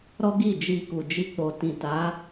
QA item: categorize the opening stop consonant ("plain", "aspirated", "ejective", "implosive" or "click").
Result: plain